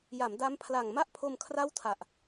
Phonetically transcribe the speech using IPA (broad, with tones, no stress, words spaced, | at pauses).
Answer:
ja˩˦m da˦˥mpʰla˨˩ŋ ma˥˩ʔpʰo˧m kʰra˥˩wtʰa˨˩ʔ